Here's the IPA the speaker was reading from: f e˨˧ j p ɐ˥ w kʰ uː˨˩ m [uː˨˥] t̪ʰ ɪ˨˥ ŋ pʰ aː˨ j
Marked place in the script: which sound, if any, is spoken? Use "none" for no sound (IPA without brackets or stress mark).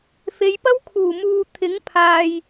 uː˨